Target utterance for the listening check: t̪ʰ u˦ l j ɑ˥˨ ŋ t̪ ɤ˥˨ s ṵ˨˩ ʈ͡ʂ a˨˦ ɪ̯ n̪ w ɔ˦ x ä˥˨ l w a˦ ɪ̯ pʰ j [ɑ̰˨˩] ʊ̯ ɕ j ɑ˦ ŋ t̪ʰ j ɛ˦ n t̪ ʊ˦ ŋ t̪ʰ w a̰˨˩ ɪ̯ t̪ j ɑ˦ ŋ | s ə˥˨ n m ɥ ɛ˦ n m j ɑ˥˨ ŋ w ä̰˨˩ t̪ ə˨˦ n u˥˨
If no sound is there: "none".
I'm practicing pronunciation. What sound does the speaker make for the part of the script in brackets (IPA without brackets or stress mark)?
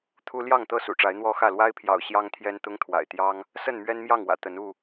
ɑ̰˨˩